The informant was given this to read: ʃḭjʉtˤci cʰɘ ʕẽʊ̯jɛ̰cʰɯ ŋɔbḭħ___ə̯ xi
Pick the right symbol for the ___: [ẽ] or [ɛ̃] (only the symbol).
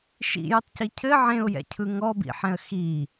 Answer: ɛ̃